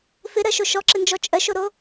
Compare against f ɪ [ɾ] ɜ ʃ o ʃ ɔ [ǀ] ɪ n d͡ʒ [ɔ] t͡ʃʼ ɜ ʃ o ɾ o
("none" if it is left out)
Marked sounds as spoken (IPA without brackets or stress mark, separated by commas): ɾ, ǁ, ɔ